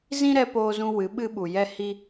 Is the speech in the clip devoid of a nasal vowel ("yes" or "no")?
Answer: no